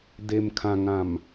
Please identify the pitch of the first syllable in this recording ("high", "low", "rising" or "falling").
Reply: low